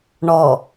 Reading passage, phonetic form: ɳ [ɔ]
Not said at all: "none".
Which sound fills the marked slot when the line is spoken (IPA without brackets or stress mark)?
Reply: ɔ